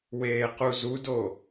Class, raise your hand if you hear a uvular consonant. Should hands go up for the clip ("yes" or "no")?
yes